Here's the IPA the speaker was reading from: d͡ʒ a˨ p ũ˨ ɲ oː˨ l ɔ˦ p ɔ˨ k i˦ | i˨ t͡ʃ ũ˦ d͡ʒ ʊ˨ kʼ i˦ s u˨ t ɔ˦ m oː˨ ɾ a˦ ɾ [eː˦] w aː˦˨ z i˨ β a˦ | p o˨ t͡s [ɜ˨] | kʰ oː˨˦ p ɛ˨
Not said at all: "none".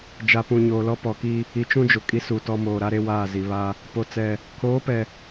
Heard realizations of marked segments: e˦, ɛ˨

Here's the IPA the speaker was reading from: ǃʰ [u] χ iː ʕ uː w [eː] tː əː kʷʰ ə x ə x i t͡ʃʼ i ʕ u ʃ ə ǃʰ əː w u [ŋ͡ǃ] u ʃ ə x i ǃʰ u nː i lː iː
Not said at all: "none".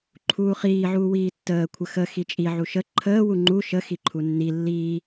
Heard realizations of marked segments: uː, iː, ŋ͡ǃ

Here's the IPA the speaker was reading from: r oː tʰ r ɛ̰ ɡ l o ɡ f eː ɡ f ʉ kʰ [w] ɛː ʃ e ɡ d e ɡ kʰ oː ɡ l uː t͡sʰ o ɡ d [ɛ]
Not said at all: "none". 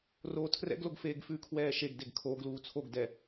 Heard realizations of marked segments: w, ɛ

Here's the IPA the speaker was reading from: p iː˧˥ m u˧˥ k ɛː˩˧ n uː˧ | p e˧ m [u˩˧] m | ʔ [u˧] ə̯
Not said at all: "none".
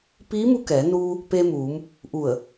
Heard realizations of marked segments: uː˩˧, u˧˩

